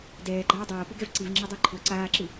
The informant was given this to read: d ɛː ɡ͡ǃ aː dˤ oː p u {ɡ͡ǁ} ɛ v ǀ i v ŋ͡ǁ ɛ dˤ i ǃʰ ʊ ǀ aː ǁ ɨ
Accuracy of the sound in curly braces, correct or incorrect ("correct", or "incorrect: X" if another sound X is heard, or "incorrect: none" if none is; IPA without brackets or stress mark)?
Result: incorrect: ɡ